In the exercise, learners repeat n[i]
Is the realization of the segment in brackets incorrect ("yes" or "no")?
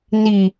no